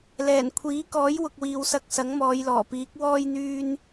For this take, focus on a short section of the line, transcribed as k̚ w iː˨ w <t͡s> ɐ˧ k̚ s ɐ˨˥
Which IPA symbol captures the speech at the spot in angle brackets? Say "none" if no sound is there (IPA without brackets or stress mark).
s